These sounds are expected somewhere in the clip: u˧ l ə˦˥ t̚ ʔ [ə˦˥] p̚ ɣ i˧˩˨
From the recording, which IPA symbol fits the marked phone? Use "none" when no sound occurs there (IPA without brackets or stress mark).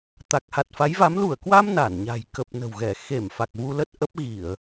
ə˦˥